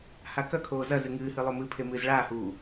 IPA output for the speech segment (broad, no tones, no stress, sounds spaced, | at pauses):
h a k ɐ kʰ oː z ɐ z ɨ ŋ ɨː h ɨ lˠ o m ɨ pʰ e m ɨː z ɭ aː h uː